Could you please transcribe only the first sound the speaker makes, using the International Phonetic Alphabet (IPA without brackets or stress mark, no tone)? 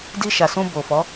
d